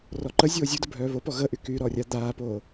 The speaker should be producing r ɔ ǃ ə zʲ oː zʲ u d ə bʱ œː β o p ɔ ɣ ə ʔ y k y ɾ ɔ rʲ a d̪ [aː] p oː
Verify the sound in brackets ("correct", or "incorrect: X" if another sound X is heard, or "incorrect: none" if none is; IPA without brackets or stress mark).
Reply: correct